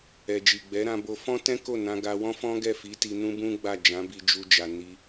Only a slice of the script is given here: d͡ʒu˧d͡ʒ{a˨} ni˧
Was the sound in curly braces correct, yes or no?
yes